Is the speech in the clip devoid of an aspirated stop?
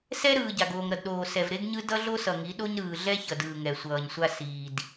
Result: yes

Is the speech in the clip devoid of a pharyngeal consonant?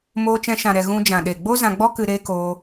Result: yes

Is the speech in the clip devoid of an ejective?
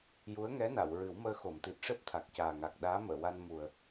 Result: yes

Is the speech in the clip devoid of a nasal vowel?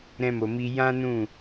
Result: no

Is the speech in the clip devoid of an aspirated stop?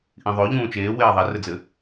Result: yes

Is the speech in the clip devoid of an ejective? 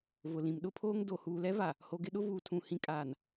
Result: no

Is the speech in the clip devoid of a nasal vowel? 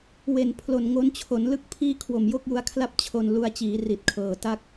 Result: yes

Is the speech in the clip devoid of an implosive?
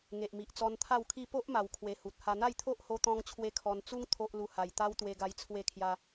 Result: yes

